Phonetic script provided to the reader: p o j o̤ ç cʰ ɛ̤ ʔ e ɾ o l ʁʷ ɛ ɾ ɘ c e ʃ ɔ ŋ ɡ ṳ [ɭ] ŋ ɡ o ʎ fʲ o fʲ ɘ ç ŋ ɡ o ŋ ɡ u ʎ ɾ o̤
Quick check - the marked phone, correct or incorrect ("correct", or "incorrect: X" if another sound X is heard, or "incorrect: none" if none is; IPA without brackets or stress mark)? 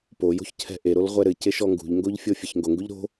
incorrect: ʎ